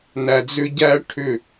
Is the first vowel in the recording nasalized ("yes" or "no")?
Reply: no